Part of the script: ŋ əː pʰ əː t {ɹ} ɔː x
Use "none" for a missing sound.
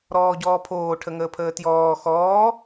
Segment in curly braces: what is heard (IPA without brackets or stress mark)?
j